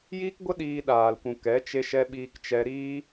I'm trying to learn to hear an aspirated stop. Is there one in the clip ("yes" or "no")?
no